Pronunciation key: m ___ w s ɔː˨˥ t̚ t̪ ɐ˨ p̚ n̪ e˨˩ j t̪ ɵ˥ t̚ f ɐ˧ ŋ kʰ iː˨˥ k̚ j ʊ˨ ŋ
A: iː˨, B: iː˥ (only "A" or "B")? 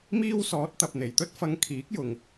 B